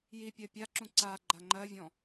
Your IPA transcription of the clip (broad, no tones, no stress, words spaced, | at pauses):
jipʲɜ pʲaǁũ ǀa ɡ͡ǃaŋ͡ǃɜvʲɔ̃